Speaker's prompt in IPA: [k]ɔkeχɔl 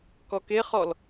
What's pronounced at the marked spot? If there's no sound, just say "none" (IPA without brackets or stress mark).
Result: k